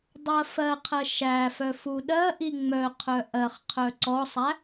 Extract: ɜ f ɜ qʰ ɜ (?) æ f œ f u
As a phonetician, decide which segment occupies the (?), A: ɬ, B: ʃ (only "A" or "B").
B